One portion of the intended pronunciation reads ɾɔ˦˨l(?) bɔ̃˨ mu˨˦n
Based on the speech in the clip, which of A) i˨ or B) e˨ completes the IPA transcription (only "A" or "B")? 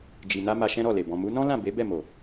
B